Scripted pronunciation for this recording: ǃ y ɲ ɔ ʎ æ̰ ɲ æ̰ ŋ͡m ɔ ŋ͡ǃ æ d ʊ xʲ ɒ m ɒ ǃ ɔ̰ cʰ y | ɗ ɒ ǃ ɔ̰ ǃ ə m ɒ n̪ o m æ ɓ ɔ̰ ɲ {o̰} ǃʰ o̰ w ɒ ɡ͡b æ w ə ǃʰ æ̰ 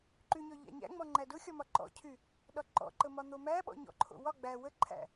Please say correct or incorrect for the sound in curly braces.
incorrect